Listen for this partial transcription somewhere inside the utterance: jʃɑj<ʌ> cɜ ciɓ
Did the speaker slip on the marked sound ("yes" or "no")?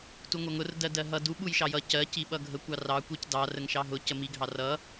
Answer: no